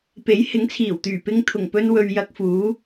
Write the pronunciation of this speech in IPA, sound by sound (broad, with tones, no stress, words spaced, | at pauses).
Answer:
pe˨˥j hɪ˨˥ŋt͡sʰiː˨˩wt̪yː˨˩ pɪ˧ŋ t̪ʰʊ˨˩ŋpɵ˧n wɵ˨ɥ jɐ˧k̚fuː˨˥